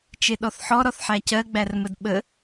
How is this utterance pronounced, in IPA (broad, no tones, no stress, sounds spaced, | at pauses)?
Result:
t͡ʃ e ɗ ɔ θ ħ ɔ ɾ ɔ θ ħ æ c ɜ ɡ͡b æ r m ə d ɓ ə